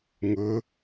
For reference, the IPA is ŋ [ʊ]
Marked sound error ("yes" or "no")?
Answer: no